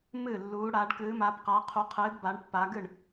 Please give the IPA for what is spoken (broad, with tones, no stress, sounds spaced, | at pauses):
m ɨ˥˩ lː uː˨˦ ɽ aː˨˦ ɖ k ɨː˨˦ m aː˨˦ p q a˨˦ qʰ u˨˦ qʰ ɨː˨˦ d b a˨˦ ɳ pː a˨˦ ɡ ɨ˥˩ ɳ